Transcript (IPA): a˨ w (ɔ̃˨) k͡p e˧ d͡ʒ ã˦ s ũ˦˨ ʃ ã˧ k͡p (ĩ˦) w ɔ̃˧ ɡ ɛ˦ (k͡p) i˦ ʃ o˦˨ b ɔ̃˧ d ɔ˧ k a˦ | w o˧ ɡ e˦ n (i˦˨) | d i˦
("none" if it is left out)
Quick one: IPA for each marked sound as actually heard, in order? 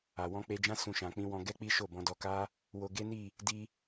ɔ̃˧, ĩ˦, k͡p, i˦˨

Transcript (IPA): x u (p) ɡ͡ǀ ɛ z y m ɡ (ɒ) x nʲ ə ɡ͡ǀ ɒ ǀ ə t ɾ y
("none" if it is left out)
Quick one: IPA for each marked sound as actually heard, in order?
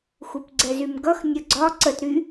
p, ʌ

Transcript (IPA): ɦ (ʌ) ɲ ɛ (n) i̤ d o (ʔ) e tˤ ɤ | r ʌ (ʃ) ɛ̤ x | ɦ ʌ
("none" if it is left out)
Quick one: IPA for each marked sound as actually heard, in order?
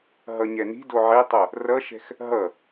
ʌ, n, ʕ, ʃ

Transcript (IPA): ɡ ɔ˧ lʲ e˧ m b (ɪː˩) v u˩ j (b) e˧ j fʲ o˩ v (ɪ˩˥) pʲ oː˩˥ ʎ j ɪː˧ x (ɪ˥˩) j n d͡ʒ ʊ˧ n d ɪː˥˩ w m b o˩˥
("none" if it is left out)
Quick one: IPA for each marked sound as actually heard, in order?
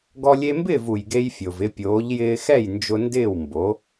ɪː˥˩, ɡ, ɪ˧, ɛ˥˩

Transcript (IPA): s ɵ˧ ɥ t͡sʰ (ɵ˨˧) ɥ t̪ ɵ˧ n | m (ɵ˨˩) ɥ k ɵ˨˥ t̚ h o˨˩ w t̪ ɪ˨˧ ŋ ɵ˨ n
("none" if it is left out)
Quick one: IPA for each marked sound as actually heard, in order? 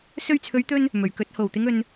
ɵ˨˧, ɵ˨˩

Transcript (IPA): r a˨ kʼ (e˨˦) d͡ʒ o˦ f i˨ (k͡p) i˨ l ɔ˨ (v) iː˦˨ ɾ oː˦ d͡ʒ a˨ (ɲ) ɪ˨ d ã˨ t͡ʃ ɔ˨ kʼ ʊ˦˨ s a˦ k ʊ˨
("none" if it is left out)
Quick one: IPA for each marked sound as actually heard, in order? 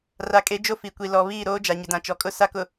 e˨˦, kʷ, β, ɲ

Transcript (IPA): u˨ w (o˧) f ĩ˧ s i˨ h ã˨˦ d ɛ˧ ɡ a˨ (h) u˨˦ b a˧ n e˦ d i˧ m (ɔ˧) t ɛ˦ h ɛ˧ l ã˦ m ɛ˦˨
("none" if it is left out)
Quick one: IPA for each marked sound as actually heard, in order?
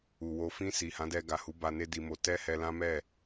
o˧, h, o˧

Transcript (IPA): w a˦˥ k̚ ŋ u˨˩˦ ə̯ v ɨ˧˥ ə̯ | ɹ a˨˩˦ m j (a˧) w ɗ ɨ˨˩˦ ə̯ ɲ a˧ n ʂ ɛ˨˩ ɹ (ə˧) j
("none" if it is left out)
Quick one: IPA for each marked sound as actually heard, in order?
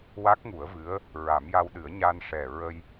a˧, ə˧

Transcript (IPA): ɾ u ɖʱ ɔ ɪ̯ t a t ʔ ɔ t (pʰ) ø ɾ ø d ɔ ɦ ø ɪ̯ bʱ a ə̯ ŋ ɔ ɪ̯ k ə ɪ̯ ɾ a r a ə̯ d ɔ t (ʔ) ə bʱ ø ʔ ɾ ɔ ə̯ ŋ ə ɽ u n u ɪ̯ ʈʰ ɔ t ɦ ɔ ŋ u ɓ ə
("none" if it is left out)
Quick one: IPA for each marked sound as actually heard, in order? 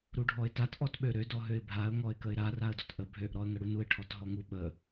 ɓ, ʔ

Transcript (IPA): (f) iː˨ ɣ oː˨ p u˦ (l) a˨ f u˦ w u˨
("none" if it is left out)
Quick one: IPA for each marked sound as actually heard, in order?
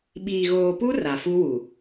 ɓ, r

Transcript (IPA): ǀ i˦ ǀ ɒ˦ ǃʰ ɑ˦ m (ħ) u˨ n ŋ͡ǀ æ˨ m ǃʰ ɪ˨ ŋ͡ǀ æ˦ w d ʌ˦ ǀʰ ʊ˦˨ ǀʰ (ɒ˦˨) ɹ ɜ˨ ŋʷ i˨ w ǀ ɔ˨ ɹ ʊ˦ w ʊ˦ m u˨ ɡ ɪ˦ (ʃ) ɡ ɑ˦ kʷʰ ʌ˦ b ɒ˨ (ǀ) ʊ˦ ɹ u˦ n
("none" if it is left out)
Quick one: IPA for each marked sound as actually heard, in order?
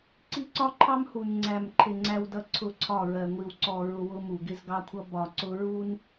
h, ɒ˦˨, z, ǀ

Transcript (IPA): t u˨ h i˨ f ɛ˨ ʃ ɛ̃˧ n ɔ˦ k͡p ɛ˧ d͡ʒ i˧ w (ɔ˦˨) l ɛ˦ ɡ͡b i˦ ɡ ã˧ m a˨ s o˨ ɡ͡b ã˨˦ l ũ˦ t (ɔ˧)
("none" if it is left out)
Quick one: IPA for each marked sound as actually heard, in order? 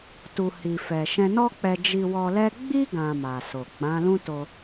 ɔ˧, o˧

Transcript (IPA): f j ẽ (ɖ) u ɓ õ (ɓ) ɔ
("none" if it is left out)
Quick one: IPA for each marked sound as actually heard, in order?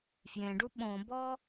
ɖ, b

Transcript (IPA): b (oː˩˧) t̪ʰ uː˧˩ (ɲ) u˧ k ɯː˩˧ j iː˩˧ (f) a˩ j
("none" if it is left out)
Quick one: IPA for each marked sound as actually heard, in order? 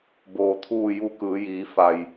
oː˩, j, f

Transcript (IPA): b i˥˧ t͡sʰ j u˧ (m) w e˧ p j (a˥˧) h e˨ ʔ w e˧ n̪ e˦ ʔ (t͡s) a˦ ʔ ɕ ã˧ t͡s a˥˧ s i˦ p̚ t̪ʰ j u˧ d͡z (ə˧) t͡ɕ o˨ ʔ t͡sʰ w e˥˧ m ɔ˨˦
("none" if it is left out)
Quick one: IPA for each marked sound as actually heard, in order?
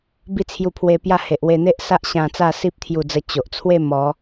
pʰ, a˥˧, s, ə˧

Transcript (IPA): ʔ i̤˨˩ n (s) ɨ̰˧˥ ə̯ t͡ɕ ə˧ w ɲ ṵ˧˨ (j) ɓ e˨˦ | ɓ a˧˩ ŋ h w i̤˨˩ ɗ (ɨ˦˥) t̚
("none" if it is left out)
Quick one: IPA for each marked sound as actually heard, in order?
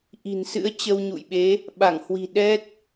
s, j, ɛ˦˥

